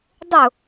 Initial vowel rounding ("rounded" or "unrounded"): rounded